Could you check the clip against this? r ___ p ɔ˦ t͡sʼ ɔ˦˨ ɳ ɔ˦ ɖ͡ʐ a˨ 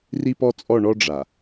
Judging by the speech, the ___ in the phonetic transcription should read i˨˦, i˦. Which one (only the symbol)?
i˦